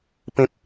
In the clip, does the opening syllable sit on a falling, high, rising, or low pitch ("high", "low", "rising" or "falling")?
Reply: high